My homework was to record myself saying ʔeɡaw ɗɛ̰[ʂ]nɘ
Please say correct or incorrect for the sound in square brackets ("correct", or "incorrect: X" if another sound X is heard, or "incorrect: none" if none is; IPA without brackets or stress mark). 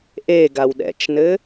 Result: incorrect: t͡ʃ